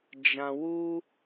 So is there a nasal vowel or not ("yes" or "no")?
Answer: yes